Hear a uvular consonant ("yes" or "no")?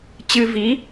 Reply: no